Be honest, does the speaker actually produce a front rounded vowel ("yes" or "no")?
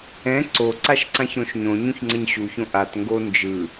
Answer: no